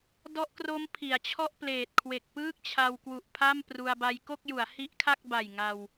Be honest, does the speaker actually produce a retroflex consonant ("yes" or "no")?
no